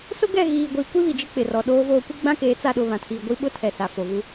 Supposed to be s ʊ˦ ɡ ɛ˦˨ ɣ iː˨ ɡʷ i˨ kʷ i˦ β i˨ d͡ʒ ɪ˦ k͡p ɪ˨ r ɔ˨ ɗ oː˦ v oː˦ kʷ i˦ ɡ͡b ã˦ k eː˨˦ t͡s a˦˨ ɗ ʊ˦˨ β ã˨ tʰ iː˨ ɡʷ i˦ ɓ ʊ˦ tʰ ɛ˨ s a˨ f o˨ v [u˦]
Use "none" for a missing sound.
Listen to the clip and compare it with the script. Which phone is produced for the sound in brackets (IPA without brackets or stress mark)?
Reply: u˦